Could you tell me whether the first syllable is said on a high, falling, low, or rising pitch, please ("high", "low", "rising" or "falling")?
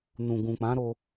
low